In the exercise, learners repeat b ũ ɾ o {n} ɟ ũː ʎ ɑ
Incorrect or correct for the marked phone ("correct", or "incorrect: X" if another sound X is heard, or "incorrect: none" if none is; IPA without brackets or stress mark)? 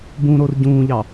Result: incorrect: r